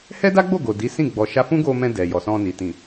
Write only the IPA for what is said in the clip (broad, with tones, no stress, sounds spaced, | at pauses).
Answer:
h ɛ˦ d a˦ ɡ͡b o˦˨ ɡ o˨ d i˨˦ s ĩ˦˨ ɡ͡b ɔ˨ ʃ a˧ f ũ˦ ɡ o˧ m ɛ̃˧ d ɛ˨ j ɔ˨ s ɔ̃˧ n i˨ t ĩ˨